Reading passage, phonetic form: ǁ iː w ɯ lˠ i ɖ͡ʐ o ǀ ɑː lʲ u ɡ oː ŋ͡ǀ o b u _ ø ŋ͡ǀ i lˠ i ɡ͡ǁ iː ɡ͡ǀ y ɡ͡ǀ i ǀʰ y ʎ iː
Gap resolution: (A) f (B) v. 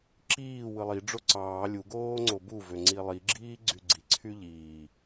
B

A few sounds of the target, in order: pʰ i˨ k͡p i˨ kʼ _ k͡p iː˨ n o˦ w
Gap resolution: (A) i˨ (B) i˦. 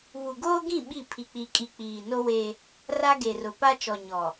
A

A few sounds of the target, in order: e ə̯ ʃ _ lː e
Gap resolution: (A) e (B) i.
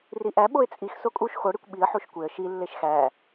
B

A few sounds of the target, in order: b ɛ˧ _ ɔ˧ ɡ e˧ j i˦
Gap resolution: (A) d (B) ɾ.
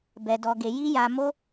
A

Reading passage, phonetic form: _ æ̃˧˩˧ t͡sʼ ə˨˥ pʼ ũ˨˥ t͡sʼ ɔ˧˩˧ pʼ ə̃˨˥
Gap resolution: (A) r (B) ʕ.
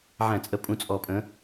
B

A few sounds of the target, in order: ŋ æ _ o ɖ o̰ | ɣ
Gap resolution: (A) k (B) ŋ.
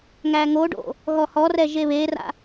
B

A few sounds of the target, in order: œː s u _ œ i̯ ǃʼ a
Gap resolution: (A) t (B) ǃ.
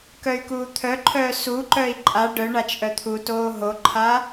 B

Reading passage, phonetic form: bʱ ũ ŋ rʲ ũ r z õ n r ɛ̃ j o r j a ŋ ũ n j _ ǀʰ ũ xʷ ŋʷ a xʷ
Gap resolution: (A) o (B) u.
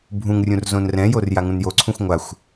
A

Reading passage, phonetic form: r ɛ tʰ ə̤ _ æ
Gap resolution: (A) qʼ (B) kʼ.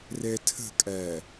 B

